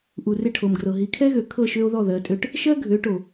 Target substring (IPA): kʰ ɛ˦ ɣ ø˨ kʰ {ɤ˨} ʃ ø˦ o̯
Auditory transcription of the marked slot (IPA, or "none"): ɤ˦˨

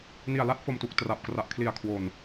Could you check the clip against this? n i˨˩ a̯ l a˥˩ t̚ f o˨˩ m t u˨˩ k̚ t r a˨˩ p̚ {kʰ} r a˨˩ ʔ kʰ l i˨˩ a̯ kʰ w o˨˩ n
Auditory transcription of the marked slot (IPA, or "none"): k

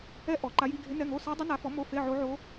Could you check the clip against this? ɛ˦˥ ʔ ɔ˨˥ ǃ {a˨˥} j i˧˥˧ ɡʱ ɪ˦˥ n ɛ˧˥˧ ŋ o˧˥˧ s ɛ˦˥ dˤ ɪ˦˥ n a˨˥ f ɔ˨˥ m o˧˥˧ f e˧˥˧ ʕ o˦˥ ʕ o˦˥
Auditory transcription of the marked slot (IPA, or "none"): a˦˥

